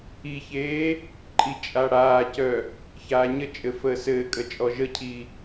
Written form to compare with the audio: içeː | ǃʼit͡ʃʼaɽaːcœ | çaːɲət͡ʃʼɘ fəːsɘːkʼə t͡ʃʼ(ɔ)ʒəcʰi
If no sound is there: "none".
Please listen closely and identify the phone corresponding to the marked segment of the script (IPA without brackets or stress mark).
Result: ɔ